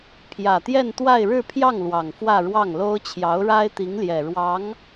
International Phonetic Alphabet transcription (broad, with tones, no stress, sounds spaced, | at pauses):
pʰ j ä˨˩ t̪ j ɛ˥˧ n t̪ w a˥˧ ɪ̯ ɻ ɻ̩˥˧ pʰ j ɑ˥˩ ŋ l w ɑ˨˩ ŋ f w ä˥˧ ɻ w ɑ˥˩ ŋ l o˥ ʊ̯ t͡ɕʰ j ɑ˧˥ ʊ̯ ɻ a˥ ɪ̯ t̪ i˧˥ ŋ l j ɛ˨˩ ɻ w ɑ˧˥ ŋ